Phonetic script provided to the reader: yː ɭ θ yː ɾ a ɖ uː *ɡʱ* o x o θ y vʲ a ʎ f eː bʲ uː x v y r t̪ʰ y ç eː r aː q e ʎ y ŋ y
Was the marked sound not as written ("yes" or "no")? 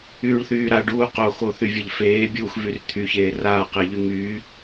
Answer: yes